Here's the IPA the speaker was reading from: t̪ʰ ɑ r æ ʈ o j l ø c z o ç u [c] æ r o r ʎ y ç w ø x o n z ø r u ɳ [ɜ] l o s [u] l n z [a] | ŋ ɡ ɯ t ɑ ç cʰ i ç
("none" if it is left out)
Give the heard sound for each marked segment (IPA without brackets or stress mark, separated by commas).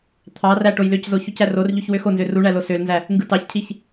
c, æ, ø, æ